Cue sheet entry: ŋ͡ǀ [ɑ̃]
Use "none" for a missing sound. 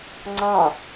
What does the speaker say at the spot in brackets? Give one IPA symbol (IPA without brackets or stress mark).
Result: ɑ̃